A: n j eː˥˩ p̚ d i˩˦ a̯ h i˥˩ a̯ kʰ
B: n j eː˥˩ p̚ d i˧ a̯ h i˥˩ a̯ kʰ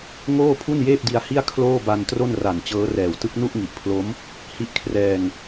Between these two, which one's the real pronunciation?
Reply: B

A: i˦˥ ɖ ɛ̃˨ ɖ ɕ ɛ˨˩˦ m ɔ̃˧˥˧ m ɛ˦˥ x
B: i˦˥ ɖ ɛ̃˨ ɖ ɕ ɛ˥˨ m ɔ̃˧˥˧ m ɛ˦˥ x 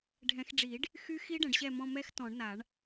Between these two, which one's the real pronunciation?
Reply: B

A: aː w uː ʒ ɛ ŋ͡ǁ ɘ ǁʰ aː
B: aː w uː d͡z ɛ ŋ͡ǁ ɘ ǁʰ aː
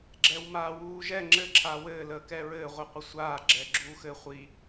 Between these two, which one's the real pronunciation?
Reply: A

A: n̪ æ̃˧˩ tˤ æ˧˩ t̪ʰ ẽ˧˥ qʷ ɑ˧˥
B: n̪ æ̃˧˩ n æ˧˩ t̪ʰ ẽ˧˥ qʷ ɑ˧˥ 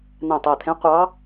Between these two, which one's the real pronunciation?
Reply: A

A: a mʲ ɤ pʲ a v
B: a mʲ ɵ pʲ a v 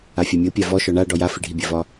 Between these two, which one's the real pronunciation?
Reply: A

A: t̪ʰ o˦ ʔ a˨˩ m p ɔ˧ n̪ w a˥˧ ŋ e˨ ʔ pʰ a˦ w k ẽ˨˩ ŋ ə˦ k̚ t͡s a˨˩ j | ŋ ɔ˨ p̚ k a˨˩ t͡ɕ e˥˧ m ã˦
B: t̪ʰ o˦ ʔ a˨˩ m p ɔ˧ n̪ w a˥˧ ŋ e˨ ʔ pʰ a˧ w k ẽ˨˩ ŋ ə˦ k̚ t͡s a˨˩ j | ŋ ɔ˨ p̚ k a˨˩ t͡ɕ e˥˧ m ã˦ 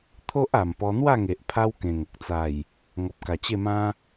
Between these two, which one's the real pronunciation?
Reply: A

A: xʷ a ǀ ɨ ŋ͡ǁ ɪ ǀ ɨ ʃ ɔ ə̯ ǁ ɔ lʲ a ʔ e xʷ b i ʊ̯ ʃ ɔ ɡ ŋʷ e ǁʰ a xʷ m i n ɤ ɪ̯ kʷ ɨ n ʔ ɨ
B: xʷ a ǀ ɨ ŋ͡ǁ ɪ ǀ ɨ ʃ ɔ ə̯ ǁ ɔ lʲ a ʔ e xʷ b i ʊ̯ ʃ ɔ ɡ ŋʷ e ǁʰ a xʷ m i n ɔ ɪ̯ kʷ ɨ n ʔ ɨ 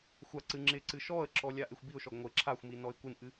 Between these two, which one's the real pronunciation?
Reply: B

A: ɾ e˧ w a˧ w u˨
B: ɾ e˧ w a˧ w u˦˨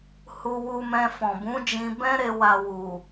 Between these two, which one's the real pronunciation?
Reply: A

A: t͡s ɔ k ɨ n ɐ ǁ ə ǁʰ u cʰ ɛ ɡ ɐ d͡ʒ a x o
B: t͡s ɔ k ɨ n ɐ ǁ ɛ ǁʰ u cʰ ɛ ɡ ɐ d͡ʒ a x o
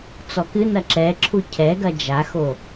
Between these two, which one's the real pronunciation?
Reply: B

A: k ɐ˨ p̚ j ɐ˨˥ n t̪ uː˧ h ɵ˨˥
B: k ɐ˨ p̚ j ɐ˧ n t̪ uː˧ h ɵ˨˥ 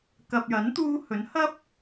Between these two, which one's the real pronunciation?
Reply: A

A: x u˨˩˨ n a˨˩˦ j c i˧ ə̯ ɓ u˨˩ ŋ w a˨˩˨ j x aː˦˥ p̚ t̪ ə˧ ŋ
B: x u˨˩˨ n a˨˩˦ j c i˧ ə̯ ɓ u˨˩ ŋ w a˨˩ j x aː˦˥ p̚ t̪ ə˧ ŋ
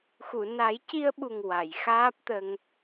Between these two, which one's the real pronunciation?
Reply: A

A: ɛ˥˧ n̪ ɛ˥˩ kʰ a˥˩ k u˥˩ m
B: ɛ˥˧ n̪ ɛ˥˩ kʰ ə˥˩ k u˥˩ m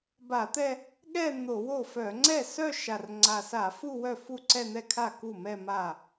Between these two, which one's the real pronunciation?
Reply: A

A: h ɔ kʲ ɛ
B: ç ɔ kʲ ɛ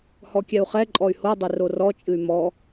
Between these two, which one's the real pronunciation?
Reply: A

